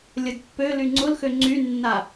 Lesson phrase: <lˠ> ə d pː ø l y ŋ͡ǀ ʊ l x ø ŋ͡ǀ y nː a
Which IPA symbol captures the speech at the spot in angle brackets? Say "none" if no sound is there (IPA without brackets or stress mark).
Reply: lʲ